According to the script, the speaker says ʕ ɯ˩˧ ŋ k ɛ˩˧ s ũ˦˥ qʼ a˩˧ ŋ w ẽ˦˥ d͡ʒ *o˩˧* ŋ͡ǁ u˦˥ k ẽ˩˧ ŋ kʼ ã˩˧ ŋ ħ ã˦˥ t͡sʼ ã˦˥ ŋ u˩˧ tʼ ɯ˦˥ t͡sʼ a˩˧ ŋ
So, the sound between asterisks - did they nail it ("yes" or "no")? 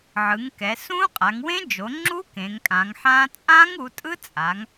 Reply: yes